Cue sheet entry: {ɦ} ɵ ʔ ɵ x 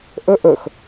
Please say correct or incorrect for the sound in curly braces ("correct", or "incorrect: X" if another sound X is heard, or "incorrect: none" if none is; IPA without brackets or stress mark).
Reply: incorrect: ʔ